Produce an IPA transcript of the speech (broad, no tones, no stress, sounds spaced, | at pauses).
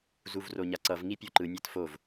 z u v r o ɲ a ǀ ʌ v ŋ i pʲ o ǃ ɯ nʲ a t f o v